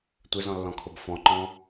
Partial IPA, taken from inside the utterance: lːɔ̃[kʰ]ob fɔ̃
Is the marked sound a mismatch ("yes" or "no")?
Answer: no